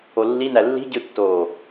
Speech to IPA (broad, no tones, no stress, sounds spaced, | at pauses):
o lː i n æ lː i̤ ɟ ɯ tː oː